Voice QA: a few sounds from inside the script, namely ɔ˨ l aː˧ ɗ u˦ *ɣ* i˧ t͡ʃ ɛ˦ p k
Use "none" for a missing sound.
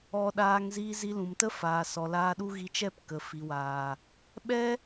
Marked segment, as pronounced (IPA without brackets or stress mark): ɣ